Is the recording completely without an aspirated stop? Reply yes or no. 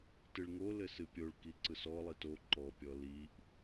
yes